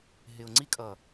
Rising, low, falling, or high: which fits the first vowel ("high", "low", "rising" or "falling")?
low